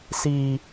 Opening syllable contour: high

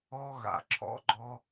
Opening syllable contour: high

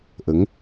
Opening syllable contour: rising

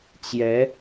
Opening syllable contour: rising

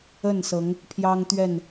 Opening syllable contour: falling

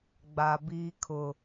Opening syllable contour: low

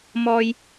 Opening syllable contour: high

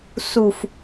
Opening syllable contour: low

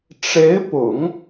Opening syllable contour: rising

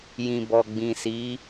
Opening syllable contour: low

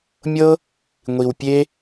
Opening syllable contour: high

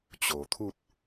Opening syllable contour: low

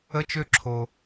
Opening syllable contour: high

